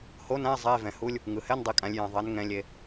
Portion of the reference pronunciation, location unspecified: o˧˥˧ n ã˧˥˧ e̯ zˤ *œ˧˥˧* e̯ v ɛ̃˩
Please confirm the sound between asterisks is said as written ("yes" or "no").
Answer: no